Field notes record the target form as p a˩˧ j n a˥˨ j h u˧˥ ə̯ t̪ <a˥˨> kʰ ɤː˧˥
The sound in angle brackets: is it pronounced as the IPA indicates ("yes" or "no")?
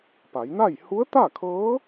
yes